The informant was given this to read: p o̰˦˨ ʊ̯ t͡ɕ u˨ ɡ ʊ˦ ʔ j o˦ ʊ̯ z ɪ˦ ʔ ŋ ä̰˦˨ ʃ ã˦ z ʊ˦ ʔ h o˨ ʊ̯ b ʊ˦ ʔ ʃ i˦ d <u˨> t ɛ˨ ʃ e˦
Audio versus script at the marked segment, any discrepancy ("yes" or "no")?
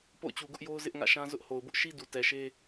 no